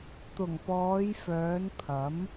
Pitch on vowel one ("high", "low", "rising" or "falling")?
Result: low